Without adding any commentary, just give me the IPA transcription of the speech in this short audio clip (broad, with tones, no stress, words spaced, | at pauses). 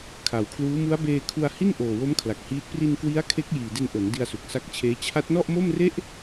kʰa˨˩wkʰluː˦˥ mu˦˥a̯beː˧ kʰu˧a̯hi˥˩nʔoː˨˩wo˦˥m kʰla˨˩k̚hiː˦˥t̚ pri˧nkwi˦˥a̯kʰe˦˥k̚ jiː˨˩de˧nʔo˩˦n di˧a̯su˨˩k̚sa˦˥k̚t͡ɕʰeː˦˥ t͡ɕʰa˦˥t̚nɔ˥˩ʔmo˥˩mre˥˩ʔ